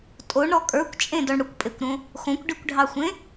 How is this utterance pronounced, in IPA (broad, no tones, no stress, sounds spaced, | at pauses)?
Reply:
tʼ o ɳ ɾ ɔ kʼ ə˞ kʷ t͡ʃʼ ẽ d ɔ ɳ ɽ ʊ kʷ pʼ e kʷ ɾ õ | x õ kʷ ɖ i kʷ ɖʱ ɑ xʷ ẽ